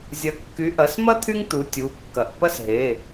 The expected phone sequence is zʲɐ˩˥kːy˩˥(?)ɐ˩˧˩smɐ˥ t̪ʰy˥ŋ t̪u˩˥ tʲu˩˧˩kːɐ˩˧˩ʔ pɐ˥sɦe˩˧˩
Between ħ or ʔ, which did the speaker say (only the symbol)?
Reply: ʔ